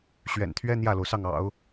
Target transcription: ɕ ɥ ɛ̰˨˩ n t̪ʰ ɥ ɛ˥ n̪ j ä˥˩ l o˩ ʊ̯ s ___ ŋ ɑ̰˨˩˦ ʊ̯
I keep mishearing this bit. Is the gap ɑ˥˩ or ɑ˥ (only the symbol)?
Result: ɑ˥˩